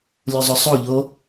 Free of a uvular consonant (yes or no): yes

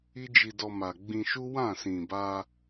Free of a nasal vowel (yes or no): no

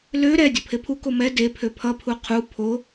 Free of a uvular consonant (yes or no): no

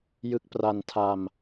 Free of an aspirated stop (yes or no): no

